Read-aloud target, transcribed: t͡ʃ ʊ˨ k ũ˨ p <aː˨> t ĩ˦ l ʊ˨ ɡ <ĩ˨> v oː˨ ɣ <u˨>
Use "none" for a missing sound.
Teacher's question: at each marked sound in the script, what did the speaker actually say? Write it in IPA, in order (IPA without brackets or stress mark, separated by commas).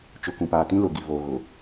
aː˨, i˨, ʊ˨